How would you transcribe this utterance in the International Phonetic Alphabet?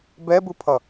bɛbɯpʰʌ

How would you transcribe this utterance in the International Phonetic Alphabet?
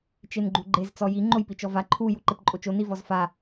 t͡ʃenɡ͡ǃuɡ͡ǃez t͡sɔji ŋ͡ǃojpit͡ʃɔva ǃʰu juǃepǃʼot͡ʃo nivɔzfa

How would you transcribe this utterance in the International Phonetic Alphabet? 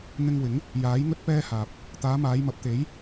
n̪ɪ˧ŋ wɪ˨˥ŋ | jaː˨˥jŋɵ˥t̚pɛː˥haː˨p̚ | t̪aː˨˧maː˨˧jmɐ˨p̚ t̪e˨˥j

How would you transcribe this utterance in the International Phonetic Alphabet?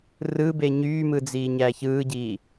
rɯbe ɲyːmɯd͡ziːɲæ çɯːɟiː

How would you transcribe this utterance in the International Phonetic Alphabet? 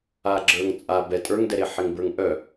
aɡ͡ǁə˞ŋt͡sʼa bɛ tʼə˞ŋdɛɾe ħɪŋbə˞ŋʔœ

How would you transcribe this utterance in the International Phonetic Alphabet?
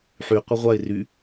ħy qʷəʁʷaɪ̯ ry

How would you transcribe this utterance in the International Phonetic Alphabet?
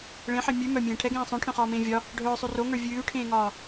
ɭẽħe mʲʉ mœmʲẽː ʈʰɛɡẽː sˤœ̃ʈʰœ̃χɒːmẽː vʲɒ | ɖʱœːsˤʉ roŋə˞ vʲʉːʈʰẽːŋɒː

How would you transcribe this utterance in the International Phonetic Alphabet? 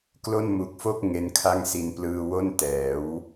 klo˥˩n mu˨˩k̚fo˥˩k̚ ŋe˦˥nkʰa˥˩ŋsi˧n plɯː˧wo˥˩ntɛː˩˦w

